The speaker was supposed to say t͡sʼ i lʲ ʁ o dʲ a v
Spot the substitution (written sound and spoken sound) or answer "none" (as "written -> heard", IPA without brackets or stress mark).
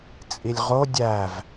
a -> æ